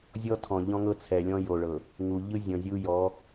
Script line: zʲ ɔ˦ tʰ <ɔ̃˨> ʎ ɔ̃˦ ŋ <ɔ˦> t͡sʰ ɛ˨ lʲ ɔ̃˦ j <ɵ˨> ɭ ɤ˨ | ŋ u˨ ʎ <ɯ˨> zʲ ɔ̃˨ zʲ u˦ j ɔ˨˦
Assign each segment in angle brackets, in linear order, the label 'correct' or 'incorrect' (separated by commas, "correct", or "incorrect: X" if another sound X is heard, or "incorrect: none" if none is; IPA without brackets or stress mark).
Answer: correct, incorrect: ɤ˦, incorrect: o˨, incorrect: ɯ˦